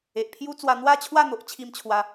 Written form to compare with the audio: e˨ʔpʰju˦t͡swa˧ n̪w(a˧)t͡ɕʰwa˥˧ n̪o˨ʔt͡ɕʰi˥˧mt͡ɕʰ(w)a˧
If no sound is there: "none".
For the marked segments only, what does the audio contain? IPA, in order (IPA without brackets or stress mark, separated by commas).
a˥˧, w